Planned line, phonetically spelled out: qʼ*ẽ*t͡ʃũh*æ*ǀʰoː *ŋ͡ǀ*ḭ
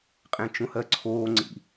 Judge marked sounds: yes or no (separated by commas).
yes, no, yes